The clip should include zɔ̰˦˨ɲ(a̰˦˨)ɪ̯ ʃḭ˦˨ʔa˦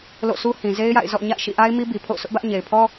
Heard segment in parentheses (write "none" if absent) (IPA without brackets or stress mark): a̰˦˨